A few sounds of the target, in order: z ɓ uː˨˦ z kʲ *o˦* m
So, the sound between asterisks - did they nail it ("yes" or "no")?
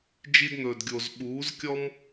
no